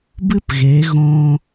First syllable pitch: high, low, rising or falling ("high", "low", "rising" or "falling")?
high